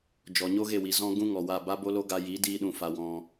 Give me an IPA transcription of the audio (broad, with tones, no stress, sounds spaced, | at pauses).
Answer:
d͡ʒ ɔ˨ ɲ o˦ ɣ e˦˨ w i˨ z ɔ̃˦ ɡ ũ˦ ŋ ɔ˨ w a˦˨ b a˦ b o˦ l o˦ ɡ a˧ j i˨˦ d iː˧ ɗ ũ˨ f a˨ w ɔ̃˧